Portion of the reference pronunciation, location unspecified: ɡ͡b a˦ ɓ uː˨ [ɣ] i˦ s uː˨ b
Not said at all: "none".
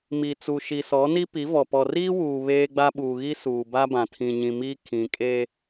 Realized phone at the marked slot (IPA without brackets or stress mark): ɣ